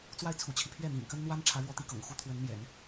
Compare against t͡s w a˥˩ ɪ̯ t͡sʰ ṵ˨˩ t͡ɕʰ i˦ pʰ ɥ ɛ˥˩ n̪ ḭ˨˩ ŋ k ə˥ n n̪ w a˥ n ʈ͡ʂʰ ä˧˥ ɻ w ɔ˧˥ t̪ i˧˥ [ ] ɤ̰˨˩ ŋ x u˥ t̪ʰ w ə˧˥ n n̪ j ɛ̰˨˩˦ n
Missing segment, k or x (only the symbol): k